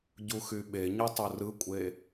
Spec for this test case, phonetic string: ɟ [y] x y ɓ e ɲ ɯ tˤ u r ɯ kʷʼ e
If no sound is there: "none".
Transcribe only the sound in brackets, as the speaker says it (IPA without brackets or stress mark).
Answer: u